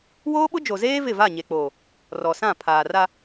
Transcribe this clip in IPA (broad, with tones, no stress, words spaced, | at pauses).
woː˦ɓʊ˦d͡ʒo˨zeː˦ vɪ˦˨va˦˨ɲe˨k͡poː˨ | rɔ˨sã˦˨ pʰaː˨ra˦